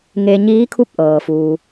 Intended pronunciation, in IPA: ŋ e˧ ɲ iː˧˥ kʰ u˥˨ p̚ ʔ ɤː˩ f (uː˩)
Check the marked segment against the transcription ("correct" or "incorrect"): correct